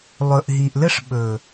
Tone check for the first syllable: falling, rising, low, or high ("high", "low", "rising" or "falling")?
low